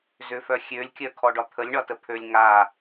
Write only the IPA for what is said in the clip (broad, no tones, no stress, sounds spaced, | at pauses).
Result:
z ʏ f œ xʲ ø lʲ kʲ œ kʰ ɔ ɖ ɒ t̪ʰ ə lʲ ɳ ɒ t ə pʰ ø lʲ ŋ a